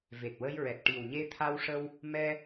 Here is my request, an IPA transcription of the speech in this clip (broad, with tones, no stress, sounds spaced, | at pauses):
v e˨˩ t̚ w ə˧ j ɹ ɛ˨˩ t̚ ʈ i˨˩ w ɲ e˧ t̪ʰ a˧ w ʂ ə˧ w | m ɛ˧